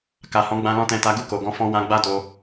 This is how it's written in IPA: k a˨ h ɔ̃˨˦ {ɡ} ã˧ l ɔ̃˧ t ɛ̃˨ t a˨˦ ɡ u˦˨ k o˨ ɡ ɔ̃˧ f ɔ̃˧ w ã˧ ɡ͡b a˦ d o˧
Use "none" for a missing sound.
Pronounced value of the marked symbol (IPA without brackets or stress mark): ɡ͡b